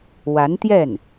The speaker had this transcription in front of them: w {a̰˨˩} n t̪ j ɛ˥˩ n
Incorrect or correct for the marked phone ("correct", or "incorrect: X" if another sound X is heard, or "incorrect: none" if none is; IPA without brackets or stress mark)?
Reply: incorrect: a˧˥